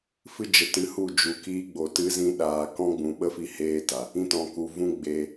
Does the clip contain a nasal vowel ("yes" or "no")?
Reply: yes